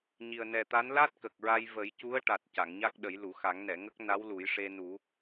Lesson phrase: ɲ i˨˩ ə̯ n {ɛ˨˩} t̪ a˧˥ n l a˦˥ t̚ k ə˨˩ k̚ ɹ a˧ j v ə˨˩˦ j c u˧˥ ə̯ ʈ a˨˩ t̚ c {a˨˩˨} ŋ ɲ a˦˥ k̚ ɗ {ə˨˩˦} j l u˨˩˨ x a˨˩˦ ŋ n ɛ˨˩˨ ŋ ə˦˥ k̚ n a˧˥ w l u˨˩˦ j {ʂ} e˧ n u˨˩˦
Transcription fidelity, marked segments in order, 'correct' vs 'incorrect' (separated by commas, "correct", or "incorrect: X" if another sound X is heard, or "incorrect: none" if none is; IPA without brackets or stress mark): correct, correct, correct, correct